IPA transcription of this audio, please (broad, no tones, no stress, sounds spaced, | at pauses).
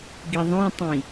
ɡ i ðˤ õ tˤ ĩ